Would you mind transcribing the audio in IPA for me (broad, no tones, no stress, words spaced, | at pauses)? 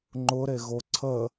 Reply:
ŋ͡ǃʊɾeɣo ǀʰə